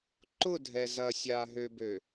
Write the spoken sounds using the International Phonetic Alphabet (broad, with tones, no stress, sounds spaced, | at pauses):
ǃ ʊ˦˨ dʱ ɛ˨ z ɐ˨ sʲ a˨ ɦ ø˨ b ø˨